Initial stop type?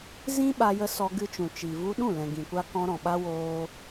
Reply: implosive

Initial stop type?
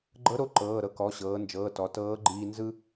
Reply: click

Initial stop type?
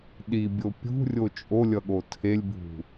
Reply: implosive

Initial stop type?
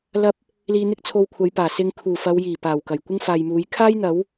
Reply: plain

